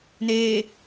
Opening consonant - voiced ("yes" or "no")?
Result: yes